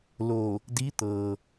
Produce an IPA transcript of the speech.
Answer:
l o˧˩ | d i˧˥ t̪ ɤː˩

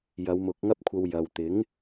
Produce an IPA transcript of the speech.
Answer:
j ɐ˨˧ w m ʊ˨˥ k̚ ŋ ɐ˥ p̚ kʷʰ ɐ˧ w j ɐ˨ w t̪ ɪ˨˥ ŋ

